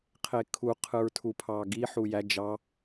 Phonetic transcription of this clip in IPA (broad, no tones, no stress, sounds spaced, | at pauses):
qʰ e kʰ u qʰ ɯ ɹ tʰ u pʰ ɑ ɡ i ħ u j æ d͡ʒ ɑ